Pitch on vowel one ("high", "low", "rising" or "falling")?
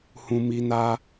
low